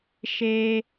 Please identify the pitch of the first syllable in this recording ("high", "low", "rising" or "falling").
high